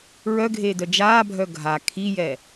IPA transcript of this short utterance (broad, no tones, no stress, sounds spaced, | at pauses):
ɹ œ ɡʱ eː d œ d͡ʒ aː bʱ œ ɡʱ a kʰ i j ɛ